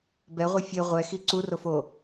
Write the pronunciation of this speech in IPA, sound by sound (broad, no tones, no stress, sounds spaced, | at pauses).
b ɛ ʁʷ i fʲ e ʁʷ ɛ x i ǀ u r o f o